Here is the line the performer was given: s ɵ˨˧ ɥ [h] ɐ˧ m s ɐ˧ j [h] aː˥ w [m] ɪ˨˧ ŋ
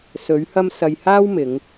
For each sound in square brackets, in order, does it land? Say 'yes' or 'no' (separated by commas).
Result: yes, yes, yes